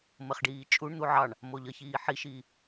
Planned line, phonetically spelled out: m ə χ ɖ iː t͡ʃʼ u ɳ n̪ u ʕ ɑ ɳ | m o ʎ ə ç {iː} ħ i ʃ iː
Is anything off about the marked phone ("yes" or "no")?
no